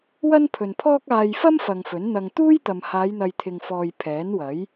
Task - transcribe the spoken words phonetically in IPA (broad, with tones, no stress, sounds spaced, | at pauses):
w ɐ˥ n pʰ ɵ˨ n pʰ ɔː˥ k̚ aː˧ j f ɐ˥ m f ɐ˨ ŋ f ɵ˨˥ n n̪ ɐ˧ ŋ t̪ uː˥ j t̪ ɐ˨ m h aː˨˧ j n̪ ɐ˨ j t̪ʰ ɪ˨ ŋ f ɔː˨ j pʰ ɛː˨˥ n w ɐ˨˥ j